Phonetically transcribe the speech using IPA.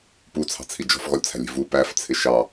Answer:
put͡sʰɑ̤t͡sʰi d͡ʒɔ̤fɣɔlʲt͡sʰæ̤lʲi̤ vu pæft͡sʰɪ ʃɑ

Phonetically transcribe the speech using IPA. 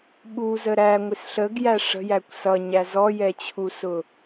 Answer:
ɓuzə ɾæŋʷɪs ɬəɡjæ ʂə̤jækʷ sʌɲæ zɔjɛt͡ɕʰusʊ

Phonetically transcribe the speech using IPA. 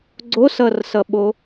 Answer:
ɡ͡ǀosʌrsʌɓo

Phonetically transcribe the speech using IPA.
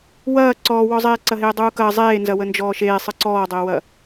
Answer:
wɐː ǀɔːwɔzˤeː ǀɐɦeːdˤuːkɐː zˤeːnzɐ wənd͡ʒɔːʃeːsˤɯ ǀɔːdˤəːwɐ

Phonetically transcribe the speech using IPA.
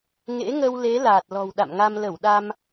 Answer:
ŋḛ˧˥ŋə˧wle˨˦ laː˨˩t̚lɔ̤˨˩wɗa̰˧˨mŋa˧m lə˧˩wɗa˧m

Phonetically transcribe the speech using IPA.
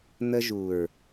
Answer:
n̪ə˧ʒu˨ɹ

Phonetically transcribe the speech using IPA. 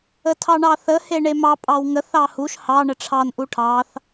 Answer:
ətʰɑɳɑθə heɳemɑ pʼɑwŋəθ ɑhuʃ hɑ ɳəʈ͡ʂʰɑn ʔuʈʰɑθ

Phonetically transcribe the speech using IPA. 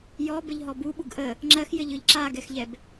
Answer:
jɔbəʎɦɔ buɓuɡ ʔə | ŋ͡ǁɜxjɘʎɯʎ ǁaɡɛxʎɛb

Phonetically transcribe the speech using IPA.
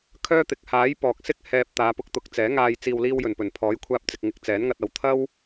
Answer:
kʰœː˥t̪ɪ˨˥k̚ haː˨˥jpɔː˨k̚sɪ˥k̚ hɛː˧p̚ t̪aː˨˧pʊ˨˥k̚t̪ʊ˨˥k̚t͡sɛː˨˥ ŋaː˧j t͡siː˨wliː˧wjɵ˨˩npɵ˨˩n pʰɔː˨˥jkʷʰaː˧p̚t͡sɪ˨k̚ŋɪ˨˥k̚ t͡sɛː˨˥nŋɐ˧t̚ɐ˨˧w t̪ʰɐ˥w

